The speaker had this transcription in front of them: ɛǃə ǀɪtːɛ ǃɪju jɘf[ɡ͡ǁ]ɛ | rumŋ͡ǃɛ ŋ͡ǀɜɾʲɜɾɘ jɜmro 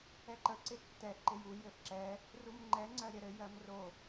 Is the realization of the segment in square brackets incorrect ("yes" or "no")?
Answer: yes